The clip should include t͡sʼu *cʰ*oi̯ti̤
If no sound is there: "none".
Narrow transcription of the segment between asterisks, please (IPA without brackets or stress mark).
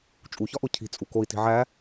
k